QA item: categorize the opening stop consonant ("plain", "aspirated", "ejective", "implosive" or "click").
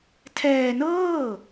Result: aspirated